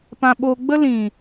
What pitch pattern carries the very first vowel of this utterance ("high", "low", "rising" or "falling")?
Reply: low